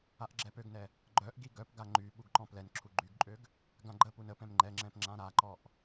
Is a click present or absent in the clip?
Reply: present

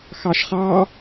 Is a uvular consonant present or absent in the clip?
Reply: present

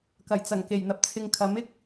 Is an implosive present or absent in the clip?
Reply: absent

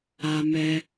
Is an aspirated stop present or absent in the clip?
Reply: absent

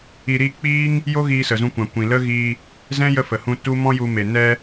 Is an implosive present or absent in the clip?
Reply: absent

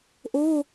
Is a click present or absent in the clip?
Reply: absent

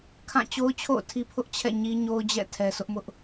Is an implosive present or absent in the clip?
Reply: absent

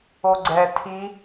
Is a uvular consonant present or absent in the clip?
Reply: absent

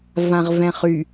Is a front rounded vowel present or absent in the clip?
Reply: present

